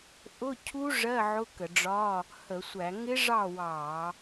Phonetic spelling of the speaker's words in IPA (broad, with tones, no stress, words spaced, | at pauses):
ʔʊ˧˥˧cʰu˦˥ ʐɜ˧˥˧ ʕʊ˧˥˧kə˧˩˧ɖ͡ʐɒ˧˥˧ | hə˧˩˧sʷæ˧˩˧ ŋɪ˦˥ ʐɑ˥˨wɑ˧˩˧